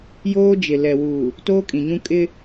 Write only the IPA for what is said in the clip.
j oː˦ d͡ʒ ɪ˨ l ɛ˨ w uː˨ | t oː˦ kʼ ĩ˨ ɲ ũ˦ kʼ ɪ˦

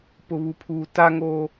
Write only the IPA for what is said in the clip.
p ʊ˨ β u˨ pʰ uː˨ t a˦ ŋ oː˦

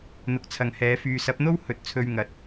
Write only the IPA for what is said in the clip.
n̪ ʊ˨˥ k̚ t͡sʰ ɐ˨ ŋ h ɛː˨˥ f yː˨ s ɐ˨˥ p̚ n̪ o˥ w h ɵ˨˥ t̚ t͡sʰ ɵ˧ ɥ ŋ ɐ˨˥ t̚

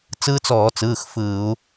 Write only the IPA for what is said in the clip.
t͡s ɯː˦˥ t͡s ɔː˧˩˧ t͡s ɯː˩˧˩ x f ɯː˧˩˧ u̯

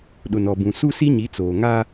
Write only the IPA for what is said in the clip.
ɗ ʊ˨ n ɔ˨ b ũ˨ s u˦ s i˦ ɲ i˨˦ t͡s oː˨ ŋ aː˦

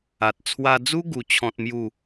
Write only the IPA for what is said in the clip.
a˨ t̚ t͡sʰ w a˧ d͡z u˦ ɡ u˧ t͡ɕʰ ɔ̃˦ t̚ m j u˥˧

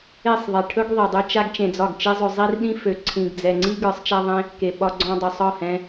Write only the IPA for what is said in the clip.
e˦˨ sˤ ðˤ e˨ ʈʰ ɵ˦ ɡ ðˤ i˨ dˤ ɵ˦ t͡ʃ a˦ ɡ t͡ʃ ẽ˧ d͡z ɒ˦˨ ɡ t͡ʃ i˦ zˤ ɵ˧ zˤ i˦ r ɗ ĩ˦ f ø˨˦ ǀʰ ĩ˨ ɡ d͡z ɛ˨ ŋ͡ǀ i˦ ɡ ə˞˨˦ sˤ t͡ʃ a˦ ðˤ ẽ˦ | k e˨ ɓ ɒ˧ ɡ͡ǀ ɔ̃˧ dˤ ɵ˨ sˤ ɒ˦˨ h ɛ̃˧

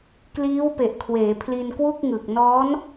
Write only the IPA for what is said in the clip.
k l iː˦˥ w p e˨˩ ʔ kʰ w eː˩˦ pʰ l i˧ n k w u˥˩ k̚ ŋ ɯ˨˩ k̚ n ɔː˦˥ n

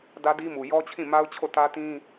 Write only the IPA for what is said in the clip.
d ä˦ d i˦ m u˨ j ɔ˦ t͡ɕʰ ĩ˦˨ m a˦ ʊ̯ t͡ɕʰ o˦˨ t ä˦ t ĩ˦

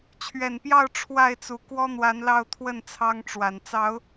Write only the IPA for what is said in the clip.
t͡ɕʰ ɥ ɛ˨˩ n p j ɑ˥˨ ʊ̯ ʈ͡ʂʰ w a˥˨ ɪ̯ t͡s u˨˩ k w ɔ˦ n̪ w a˨˦ n l ɑ˥˨ ʊ̯ t̪ʰ w ə˥˨ n t͡sʰ ɑ˦ ŋ ʈ͡ʂ w a˨˩ n t͡s ɑ˨˦ ʊ̯

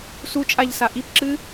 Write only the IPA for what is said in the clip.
s u t͡ʃʼ a ʎ s a ʔ i p ǁ ɨː

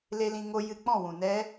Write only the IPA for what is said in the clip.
l e˧ l ĩ˧ ŋ o˧ j ɨ˧ k͡p ɔ̃˦˨ w ũ˨ n ɛ˦

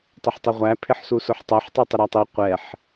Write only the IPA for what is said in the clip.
tˤ ɪ ħ tˤ ɪ ʁʷ æ pʰ ɪ ħ s u s ʊ ħ tˤ ɛ ħ tˤ u tˤ ɪ ɾ ɛ tˤ i qʷ ɛ ħ

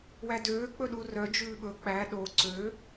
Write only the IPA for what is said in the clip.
w æ d øː k͡p ɵ ɗ u r œ d͡ʒ ʉː ɓ ɵ k͡p æ ɗ o ǀ ø

